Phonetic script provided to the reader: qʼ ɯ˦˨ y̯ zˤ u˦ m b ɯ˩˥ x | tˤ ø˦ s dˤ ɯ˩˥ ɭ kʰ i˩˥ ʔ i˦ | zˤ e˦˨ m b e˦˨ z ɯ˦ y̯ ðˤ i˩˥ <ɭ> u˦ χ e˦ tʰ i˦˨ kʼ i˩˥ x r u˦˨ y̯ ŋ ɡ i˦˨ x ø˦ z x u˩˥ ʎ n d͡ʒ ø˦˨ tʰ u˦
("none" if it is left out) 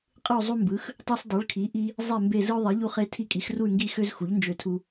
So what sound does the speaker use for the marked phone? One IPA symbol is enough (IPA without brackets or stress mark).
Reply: ʎ